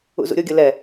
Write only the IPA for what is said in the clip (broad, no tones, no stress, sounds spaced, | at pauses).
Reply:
ṵ z ṵ ɾʲ o ɡʲ ɤ l ɛ